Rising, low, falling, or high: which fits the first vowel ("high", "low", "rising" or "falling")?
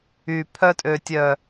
low